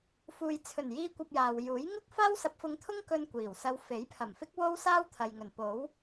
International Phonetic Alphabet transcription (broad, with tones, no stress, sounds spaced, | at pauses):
f uː˨ j t͡sʰ ɵ˨˩ n j iː˧ kʷ ɐ˧ p̚ j aː˨ w j uː˨˥ j ŋ ʊ˥ k̚ f aː˥ w s ɐ˧ p̚ f ʊ˧ ŋ t̪ʰ ʊ˥ ŋ k ɵ˧ n kʷ iː˨˩ w s ɐ˧ w f e˨˥ j pʰ ɐ˨˩ m f ɪ˥ k̚ w o˥ w s aː˥ w t̪ʰ ɐ˨ j ŋ ɵ˨˩ n p o˨˥ w